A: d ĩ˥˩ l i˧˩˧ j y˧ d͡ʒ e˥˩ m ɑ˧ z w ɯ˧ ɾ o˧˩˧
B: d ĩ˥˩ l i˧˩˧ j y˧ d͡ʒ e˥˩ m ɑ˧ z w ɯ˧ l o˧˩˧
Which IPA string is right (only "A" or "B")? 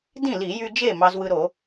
A